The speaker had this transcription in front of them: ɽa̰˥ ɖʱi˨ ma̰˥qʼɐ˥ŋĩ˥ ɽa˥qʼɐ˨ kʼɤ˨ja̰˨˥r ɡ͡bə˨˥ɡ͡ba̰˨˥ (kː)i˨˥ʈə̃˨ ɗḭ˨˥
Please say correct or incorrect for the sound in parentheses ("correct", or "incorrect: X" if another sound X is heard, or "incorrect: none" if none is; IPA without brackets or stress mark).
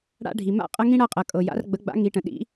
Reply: incorrect: ŋ